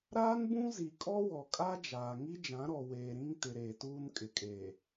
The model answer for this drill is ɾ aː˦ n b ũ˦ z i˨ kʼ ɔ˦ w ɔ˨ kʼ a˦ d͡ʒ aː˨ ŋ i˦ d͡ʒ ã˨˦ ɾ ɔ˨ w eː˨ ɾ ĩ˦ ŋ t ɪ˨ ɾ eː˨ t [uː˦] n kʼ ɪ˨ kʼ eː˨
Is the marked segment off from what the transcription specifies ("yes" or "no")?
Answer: no